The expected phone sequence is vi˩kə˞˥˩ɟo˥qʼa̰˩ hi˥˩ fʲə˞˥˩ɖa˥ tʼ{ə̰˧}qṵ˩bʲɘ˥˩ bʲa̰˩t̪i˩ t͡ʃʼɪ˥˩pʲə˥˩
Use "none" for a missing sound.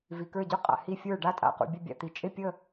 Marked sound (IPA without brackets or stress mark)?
a̰˧